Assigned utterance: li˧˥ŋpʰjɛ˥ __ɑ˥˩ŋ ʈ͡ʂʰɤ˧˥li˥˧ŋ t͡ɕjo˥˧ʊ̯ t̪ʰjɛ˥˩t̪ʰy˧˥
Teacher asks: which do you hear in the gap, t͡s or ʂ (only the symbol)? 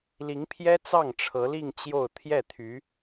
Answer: t͡s